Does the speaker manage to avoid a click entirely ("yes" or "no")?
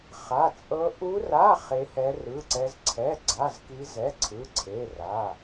no